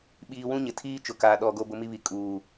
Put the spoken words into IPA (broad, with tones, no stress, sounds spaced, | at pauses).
ɓ iː˨ w ũ˦ ɲ ɪ˨ tʰ iː˦ t͡ʃ ʊ˨ k aː˨ ɗ ɔ˨ ɡ o˦ b ʊ˦ m i˦ β i˨ kʼ uː˨